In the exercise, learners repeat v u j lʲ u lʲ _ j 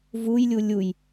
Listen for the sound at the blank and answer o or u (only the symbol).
u